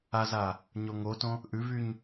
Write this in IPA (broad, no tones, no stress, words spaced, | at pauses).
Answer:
aza | ɲoŋotõ | ʔʉvyɲ